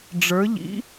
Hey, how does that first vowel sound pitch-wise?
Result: rising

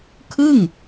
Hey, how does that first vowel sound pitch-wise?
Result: falling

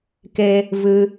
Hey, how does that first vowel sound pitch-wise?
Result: high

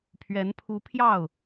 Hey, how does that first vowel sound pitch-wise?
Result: rising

